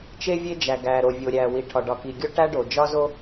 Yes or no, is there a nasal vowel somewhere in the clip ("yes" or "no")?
no